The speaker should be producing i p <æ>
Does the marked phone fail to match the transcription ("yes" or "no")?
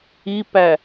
no